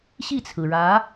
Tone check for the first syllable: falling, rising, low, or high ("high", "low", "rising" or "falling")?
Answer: falling